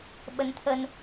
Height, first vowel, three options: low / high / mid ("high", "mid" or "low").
mid